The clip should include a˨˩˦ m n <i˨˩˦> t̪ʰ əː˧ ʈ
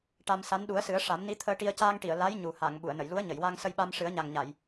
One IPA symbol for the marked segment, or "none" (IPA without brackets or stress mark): i˧˥